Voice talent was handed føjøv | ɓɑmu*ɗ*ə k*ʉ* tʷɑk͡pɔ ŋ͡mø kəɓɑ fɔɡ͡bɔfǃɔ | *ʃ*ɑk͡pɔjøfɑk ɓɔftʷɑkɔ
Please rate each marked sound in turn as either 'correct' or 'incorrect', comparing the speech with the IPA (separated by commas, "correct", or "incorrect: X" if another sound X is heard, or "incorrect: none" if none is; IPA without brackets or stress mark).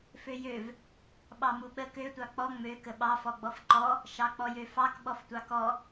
incorrect: ɓ, incorrect: ø, correct